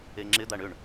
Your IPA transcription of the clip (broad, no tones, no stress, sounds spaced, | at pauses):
e ŋ͡ǁ ɪ d̪ a ɳ ʏ ɳ